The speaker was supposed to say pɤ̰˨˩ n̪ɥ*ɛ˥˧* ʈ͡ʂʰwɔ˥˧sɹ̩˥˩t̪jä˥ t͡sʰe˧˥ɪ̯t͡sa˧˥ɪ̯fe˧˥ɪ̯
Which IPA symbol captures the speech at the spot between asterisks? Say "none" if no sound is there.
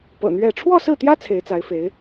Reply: ɛ˥˧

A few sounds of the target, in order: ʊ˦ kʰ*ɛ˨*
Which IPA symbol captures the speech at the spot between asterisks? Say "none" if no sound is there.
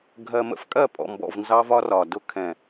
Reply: ɛ̃˨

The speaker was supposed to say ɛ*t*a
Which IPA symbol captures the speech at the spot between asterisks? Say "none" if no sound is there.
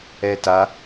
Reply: t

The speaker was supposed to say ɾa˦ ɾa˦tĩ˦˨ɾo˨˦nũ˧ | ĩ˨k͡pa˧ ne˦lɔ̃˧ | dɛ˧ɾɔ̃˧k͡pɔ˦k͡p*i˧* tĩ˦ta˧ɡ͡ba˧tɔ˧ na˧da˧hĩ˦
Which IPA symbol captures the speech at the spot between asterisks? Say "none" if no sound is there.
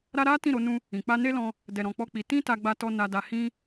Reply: i˧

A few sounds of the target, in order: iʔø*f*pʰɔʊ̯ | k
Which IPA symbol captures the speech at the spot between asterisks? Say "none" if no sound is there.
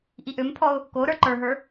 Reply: m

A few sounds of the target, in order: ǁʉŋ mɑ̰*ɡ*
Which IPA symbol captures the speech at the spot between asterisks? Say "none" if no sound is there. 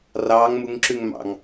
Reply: ŋ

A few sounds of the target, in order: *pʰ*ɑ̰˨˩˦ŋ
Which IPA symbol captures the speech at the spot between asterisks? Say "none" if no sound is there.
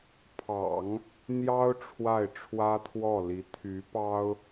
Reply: pʰ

